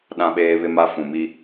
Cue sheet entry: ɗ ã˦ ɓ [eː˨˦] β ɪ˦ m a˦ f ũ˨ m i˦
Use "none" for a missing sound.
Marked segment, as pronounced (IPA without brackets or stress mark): eː˦